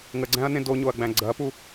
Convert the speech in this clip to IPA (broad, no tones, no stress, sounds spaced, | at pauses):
ŋ ə ɡ͡ǀ æ̃ ɐ̯ n ẽ d o ɲ o ɐ̯ ɡ͡b æ̃ ɡ͡ǀ ɐ p u